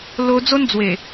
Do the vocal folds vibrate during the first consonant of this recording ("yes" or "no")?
yes